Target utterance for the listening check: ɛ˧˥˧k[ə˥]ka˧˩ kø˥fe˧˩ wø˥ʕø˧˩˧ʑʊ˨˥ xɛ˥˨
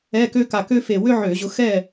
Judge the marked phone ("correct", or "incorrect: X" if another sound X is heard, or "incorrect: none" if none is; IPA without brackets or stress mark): incorrect: ø˥